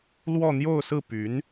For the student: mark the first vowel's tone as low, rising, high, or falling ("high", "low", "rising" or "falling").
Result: falling